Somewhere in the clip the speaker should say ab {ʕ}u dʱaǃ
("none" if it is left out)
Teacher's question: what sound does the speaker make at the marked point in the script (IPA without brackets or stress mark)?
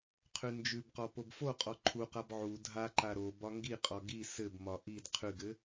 ʕ